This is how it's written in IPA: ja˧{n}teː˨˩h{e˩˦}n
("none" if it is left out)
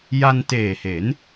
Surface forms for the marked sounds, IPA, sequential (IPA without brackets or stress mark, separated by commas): n, e˩˦